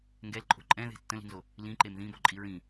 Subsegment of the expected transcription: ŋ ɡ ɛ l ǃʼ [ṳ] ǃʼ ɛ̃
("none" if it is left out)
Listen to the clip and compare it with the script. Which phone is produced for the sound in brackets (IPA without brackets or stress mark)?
o̤